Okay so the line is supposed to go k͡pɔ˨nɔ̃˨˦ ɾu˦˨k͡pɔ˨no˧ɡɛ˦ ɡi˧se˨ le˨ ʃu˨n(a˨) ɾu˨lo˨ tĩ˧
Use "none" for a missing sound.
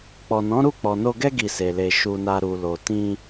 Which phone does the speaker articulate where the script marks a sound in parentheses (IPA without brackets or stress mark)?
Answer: a˨